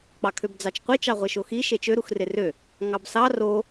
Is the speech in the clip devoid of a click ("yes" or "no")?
yes